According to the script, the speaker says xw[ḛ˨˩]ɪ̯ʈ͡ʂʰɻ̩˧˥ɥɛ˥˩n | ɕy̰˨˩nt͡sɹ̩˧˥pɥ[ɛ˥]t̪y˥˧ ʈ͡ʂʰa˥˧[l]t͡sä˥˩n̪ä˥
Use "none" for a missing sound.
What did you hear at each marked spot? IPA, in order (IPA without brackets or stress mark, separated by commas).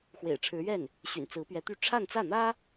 ḛ˨˩, ɛ˧˥, n